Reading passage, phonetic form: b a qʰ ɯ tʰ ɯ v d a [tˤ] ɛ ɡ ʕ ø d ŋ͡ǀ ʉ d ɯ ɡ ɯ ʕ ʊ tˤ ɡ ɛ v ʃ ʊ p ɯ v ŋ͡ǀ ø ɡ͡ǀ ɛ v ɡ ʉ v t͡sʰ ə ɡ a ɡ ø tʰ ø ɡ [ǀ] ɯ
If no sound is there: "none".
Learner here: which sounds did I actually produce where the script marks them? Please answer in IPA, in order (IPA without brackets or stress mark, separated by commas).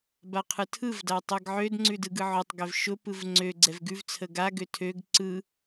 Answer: tˤ, ǀ